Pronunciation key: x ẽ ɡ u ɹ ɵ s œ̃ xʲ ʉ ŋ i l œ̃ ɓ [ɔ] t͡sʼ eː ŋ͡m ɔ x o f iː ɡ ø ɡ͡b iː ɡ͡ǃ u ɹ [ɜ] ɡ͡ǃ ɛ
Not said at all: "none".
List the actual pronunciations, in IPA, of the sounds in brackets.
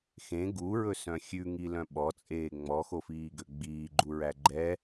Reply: ɔ, æ

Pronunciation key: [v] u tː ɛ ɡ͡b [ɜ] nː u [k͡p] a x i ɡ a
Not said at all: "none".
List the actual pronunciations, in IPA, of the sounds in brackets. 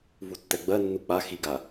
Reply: v, ɜ, k͡p

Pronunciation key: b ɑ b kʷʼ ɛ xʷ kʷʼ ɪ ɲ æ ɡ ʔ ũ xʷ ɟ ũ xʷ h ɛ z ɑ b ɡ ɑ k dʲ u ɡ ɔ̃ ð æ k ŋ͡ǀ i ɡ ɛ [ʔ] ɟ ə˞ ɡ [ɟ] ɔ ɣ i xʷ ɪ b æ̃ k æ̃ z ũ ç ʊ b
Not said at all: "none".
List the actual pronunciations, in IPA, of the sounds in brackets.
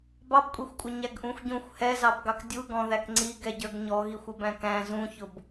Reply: none, ɲ

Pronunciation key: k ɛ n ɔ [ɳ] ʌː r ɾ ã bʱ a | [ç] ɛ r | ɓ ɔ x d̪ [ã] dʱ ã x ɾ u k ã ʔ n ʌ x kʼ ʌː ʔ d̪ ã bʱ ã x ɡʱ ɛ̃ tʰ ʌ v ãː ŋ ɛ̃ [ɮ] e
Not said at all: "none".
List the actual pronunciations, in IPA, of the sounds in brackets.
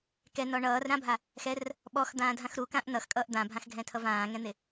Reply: ɳ, x, ãː, n̪

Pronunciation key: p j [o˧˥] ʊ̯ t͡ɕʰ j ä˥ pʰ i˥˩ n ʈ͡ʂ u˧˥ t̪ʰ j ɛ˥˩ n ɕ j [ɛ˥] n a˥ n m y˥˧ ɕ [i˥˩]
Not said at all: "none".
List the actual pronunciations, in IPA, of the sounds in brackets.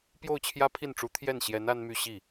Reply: o˥˩, ɛ˧˥, i˥˩

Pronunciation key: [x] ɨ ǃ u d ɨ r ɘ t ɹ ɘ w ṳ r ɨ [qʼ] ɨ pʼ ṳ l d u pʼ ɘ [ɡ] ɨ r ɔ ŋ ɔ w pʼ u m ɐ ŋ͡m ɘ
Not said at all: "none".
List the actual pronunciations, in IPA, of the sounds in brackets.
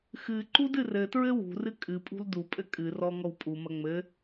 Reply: x, kʼ, kʼ

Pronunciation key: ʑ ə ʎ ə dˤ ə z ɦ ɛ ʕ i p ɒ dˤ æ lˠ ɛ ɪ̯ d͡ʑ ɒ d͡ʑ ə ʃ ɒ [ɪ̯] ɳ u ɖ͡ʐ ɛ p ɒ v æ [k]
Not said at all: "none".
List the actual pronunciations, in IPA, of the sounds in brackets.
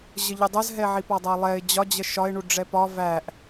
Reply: ɪ̯, ʔ

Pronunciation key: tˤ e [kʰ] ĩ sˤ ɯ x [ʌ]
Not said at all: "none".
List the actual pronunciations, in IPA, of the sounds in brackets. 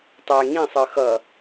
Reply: ŋ, ʌ

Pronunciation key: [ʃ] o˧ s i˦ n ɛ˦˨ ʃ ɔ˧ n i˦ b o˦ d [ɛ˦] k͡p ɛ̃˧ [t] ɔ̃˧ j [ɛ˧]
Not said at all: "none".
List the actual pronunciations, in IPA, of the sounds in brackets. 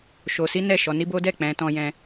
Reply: ʃ, ɛ˦˨, t, ɛ̃˧

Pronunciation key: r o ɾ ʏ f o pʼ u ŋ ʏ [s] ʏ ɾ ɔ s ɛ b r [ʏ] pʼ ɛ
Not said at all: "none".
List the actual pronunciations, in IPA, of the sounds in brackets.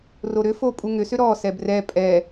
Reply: s, ɛ

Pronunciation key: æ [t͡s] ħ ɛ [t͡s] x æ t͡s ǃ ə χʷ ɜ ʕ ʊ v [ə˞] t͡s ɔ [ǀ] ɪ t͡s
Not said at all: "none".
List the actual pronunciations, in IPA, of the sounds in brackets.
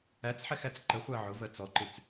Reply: t͡s, none, ɜ, ǃ

